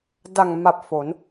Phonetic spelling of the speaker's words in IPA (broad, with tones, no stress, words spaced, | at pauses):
da˨˩ŋma˨˩p̚ fo˩˦n